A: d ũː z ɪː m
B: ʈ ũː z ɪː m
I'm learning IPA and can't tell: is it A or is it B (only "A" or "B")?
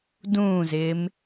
A